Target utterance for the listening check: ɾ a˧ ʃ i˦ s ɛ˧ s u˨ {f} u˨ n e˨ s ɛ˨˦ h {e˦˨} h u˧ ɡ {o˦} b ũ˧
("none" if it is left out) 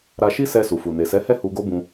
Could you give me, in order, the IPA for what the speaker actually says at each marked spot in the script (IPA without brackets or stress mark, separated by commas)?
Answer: f, ɛ˦˨, o˦